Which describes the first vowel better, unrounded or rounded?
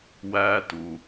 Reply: unrounded